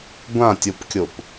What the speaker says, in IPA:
ɡʷãtʲopkʲop

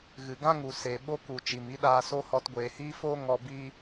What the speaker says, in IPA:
ɣɨ˨ɡã˦ŋu˨ se˨ɓo˦ku˨ t͡ʃi˨mi˦ɗaː˧so˦ hɔ˧tɡʷeː˨hiː˦foː˦ ŋɔ˧biː˦

